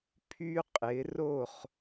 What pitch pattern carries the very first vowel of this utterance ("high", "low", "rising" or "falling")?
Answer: high